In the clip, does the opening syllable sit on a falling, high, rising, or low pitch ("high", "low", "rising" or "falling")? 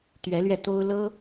rising